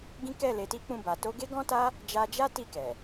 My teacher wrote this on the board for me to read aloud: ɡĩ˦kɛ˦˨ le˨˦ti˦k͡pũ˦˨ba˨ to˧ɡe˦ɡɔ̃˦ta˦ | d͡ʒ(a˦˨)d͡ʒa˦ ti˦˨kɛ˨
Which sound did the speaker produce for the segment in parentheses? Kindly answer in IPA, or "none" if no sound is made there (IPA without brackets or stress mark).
a˧